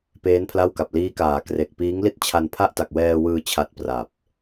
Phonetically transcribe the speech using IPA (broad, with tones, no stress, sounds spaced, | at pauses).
p eː˦˥ n pʰ l a˥˩ w k a˨˩ p̚ l iː˦˥ k aː˩˦ k r e˨˩ k̚ p iː˦˥ ŋ l i˥˩ t̚ t͡ɕʰ a˧ n pʰ a˥˩ ʔ t a˨˩ k̚ w ɛː˧ w ɯː˧ t͡ɕʰ a˦˥ t̚ p r a˨˩ p̚